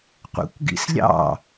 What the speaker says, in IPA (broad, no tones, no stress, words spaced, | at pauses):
qʷḛkʷɡḭslʲɑ̰